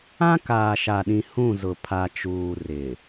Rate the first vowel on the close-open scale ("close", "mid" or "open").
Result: open